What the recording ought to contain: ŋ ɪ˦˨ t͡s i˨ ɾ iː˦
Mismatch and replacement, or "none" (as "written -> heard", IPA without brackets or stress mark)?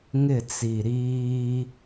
none